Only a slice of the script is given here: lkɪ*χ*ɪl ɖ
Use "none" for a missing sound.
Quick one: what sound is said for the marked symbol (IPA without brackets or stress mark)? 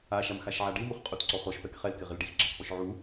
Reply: ʁ